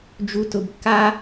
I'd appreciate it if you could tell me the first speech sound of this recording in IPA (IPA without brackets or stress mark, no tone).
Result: d͡ʒ